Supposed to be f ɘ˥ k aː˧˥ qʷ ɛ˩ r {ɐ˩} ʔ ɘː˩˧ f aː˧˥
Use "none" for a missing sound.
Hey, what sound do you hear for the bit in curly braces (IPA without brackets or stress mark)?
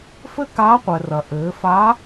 ɐ˩